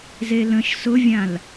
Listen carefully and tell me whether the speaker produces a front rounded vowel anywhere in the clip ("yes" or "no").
no